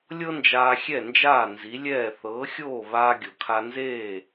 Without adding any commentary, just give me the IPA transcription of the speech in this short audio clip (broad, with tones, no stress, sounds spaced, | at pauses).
lʲ ɤ˥ n d͡ʒ aː˧ xʲ ɛ˥˩ n d͡ʒ aː˥˩ n z i˩˥ lʲ ɛː˥˩ θ ɤː˩˥ xʲ oː˥˩ β aː˧ ɡʲ o˩ kʰ a˧ n z eː˥˩